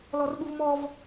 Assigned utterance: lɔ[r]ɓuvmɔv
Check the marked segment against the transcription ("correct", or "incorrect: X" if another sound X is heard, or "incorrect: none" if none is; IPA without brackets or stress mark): correct